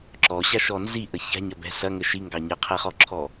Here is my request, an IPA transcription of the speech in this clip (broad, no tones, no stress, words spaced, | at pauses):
ǁɔɕaʃɔ nziʔə ça̤ɲɐbɛ̤ sɐŋə ʃiŋɡɑ ɲəqʰɛχɔǁʰɔ